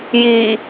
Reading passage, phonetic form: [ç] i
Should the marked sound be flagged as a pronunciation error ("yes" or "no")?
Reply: yes